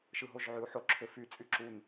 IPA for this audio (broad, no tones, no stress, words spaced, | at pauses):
ʃɯɦoʒʕyu̯ħo ǁʰøfy t͡sʼyǁun